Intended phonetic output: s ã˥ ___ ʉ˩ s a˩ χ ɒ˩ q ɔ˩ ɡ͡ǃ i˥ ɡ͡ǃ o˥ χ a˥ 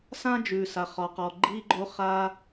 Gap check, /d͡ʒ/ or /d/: d͡ʒ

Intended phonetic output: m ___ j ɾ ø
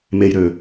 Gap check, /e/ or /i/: e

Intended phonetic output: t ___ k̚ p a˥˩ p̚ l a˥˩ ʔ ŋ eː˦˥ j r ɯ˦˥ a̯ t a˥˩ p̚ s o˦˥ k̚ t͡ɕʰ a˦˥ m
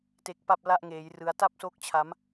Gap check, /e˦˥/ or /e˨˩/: e˦˥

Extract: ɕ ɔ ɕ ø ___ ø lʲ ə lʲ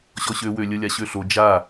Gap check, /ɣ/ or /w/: w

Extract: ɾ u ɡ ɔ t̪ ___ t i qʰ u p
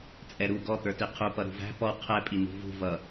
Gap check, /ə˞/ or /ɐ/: ə˞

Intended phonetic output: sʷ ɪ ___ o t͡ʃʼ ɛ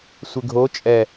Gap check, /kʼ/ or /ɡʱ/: ɡʱ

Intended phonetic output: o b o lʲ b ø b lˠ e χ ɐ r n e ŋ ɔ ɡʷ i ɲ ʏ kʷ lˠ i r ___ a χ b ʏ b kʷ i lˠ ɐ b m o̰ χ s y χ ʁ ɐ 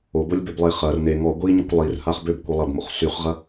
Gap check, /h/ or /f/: h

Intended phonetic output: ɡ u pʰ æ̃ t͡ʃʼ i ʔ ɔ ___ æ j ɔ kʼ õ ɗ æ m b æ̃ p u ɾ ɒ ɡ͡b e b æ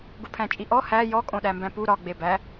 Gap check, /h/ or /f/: h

